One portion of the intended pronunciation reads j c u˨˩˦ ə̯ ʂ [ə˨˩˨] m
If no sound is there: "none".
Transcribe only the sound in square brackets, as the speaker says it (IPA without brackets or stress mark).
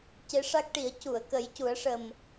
ə˨˩